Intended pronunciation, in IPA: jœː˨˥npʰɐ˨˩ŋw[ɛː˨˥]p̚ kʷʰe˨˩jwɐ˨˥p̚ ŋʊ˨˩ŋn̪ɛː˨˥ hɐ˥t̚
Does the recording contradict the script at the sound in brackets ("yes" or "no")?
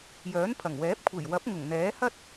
no